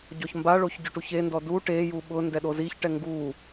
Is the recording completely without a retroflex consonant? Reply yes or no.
no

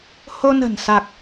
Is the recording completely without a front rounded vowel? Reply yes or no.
yes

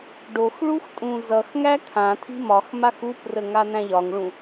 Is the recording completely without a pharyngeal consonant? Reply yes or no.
yes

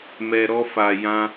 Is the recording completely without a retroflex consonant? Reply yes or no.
yes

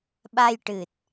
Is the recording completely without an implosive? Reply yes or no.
no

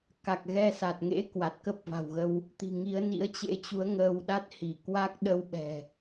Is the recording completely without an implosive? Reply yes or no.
no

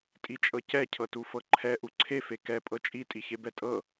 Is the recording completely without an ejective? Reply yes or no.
no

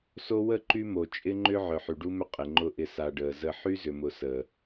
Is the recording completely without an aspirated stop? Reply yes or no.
yes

